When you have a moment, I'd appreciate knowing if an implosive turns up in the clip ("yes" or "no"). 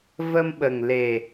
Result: yes